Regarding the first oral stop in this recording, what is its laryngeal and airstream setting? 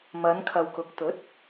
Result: aspirated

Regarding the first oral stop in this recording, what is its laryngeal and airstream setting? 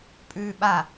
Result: ejective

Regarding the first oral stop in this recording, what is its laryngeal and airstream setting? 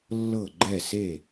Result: click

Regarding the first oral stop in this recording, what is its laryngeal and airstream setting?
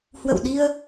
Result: implosive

